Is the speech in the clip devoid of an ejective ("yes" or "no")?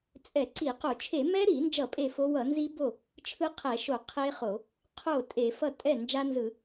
no